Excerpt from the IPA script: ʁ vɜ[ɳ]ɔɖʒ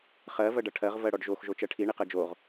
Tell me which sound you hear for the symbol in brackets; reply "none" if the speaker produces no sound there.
ɽ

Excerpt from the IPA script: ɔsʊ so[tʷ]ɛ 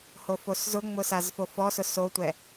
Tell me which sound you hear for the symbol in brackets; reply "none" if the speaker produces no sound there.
tʷ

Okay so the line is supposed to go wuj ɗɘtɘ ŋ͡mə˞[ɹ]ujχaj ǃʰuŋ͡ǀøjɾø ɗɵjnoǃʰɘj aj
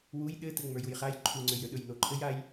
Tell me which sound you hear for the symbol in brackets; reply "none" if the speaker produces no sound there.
j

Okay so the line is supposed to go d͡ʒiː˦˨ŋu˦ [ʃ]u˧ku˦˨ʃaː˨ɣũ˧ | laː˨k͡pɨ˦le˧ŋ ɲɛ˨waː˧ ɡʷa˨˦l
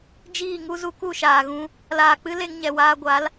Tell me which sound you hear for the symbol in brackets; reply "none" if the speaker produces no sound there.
z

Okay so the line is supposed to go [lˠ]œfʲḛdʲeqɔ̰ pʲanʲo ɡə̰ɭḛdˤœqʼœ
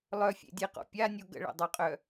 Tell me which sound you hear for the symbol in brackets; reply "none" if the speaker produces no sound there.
lˠ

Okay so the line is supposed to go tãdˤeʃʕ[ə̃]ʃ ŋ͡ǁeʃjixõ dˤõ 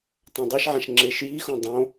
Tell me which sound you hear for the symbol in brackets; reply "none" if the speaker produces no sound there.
ã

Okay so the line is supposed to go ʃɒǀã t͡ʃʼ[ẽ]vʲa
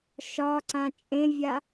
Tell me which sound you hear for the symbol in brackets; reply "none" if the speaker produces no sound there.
ẽ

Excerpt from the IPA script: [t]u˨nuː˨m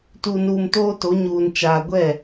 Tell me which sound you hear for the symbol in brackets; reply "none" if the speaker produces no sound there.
t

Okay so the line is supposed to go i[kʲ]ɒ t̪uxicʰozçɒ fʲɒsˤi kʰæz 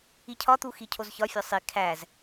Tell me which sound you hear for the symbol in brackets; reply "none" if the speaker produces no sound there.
cʰ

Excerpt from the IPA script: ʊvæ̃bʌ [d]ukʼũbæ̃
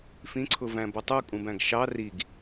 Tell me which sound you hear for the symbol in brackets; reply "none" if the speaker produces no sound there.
tˤ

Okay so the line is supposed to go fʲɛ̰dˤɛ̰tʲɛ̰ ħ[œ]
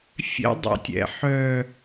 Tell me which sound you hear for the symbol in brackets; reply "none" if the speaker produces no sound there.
œ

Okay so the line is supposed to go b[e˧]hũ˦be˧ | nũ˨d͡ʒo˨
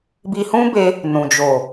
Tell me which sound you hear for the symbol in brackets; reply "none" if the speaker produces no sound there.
i˧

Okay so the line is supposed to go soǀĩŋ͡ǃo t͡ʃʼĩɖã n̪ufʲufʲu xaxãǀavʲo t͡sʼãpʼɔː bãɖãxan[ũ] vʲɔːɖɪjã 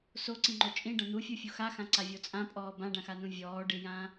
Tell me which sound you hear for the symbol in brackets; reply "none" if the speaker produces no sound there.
ũ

